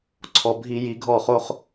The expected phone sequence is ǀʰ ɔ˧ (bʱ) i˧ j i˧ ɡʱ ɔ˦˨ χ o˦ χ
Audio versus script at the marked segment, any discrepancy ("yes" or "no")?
no